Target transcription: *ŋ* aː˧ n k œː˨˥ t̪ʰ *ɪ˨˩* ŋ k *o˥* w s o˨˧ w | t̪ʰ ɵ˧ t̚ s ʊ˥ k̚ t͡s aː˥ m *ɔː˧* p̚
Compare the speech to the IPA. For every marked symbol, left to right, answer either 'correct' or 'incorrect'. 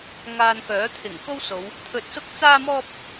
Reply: correct, correct, correct, incorrect: ɔː˥

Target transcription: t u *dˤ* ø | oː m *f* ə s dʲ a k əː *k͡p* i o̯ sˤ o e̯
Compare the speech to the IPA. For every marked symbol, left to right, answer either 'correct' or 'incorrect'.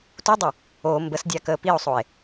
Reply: correct, incorrect: b, incorrect: p

